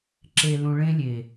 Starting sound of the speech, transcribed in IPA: ǁ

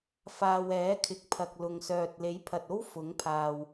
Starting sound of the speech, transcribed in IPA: f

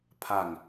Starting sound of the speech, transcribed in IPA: pʰ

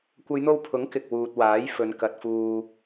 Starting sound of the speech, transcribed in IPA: kʷ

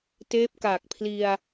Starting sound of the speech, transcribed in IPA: t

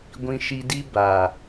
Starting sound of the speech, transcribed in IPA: ɡʷ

